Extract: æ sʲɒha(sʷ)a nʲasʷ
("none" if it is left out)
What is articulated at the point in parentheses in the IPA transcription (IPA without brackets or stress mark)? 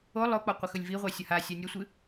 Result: sʲ